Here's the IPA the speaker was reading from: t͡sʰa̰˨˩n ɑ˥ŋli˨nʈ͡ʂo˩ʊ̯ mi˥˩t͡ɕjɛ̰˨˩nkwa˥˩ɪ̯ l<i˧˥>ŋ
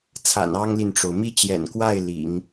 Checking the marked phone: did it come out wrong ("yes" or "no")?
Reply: yes